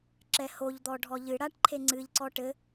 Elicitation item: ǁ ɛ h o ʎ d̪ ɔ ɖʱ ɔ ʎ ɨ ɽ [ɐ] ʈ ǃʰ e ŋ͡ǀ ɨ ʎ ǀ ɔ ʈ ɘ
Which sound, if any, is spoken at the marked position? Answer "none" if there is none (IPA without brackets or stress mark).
a